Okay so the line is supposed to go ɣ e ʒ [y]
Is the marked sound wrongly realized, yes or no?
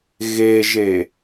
yes